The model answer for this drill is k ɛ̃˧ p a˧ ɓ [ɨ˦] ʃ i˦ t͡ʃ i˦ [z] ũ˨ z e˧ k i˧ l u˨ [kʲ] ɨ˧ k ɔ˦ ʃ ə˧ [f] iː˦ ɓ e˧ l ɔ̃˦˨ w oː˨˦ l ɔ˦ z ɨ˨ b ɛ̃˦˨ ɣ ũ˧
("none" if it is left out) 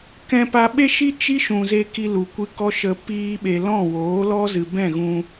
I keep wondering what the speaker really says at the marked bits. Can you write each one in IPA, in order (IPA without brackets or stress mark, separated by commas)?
e˦, ʃ, kʷ, p